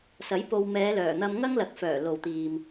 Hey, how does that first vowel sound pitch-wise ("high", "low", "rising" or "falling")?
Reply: rising